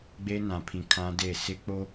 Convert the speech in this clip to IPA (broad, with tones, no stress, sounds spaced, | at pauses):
ɡ͡b e˦ n ã˨ pʰ ĩ˨ kʰ ã˦ d e˦˨ s ɪ˦ k͡p o˦